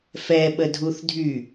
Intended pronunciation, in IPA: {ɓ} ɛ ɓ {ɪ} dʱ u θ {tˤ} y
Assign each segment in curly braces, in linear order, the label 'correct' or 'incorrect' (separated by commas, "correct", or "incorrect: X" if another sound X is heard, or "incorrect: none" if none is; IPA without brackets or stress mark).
incorrect: f, incorrect: ə, incorrect: dʱ